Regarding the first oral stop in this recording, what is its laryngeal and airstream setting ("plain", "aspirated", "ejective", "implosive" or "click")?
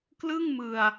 plain